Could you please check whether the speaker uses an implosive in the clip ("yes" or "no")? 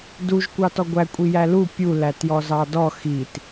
no